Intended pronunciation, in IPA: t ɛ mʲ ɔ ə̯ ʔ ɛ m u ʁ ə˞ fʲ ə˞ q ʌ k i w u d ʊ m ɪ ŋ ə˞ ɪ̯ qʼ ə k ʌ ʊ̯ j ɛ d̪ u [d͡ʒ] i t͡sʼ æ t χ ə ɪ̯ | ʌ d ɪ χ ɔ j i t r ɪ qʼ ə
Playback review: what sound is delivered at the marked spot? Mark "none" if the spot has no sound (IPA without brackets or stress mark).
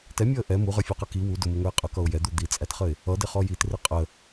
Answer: d̪